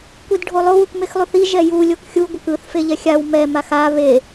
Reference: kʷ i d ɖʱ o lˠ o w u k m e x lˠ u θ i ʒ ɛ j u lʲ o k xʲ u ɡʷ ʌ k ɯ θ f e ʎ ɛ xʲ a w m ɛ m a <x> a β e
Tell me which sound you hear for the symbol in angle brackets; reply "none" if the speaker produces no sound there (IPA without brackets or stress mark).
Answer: x